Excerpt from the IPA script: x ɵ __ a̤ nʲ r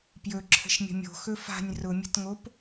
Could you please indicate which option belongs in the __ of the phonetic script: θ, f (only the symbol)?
f